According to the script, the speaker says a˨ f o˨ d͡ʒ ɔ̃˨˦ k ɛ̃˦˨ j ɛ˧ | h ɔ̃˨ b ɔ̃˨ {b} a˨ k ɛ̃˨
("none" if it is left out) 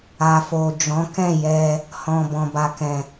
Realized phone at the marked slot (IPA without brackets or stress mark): b